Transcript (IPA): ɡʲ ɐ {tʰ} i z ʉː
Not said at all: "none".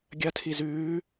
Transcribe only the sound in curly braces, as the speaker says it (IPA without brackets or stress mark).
tʰ